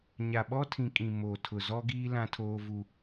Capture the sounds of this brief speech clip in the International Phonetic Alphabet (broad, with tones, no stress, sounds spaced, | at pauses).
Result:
ɲ a˨ ɓ ɔ˦ tʰ ĩ˨ kʼ ĩ˨ m o˨ tʰ ʊ˨ z ɔ˦ ɡ iː˦ l ã˦ tʰ oː˦ v u˦